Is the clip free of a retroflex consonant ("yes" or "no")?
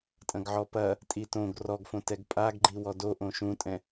yes